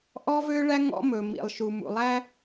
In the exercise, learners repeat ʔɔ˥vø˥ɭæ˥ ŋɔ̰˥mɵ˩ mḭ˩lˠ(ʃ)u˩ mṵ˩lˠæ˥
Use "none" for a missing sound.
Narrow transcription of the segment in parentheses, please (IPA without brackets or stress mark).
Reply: ʃ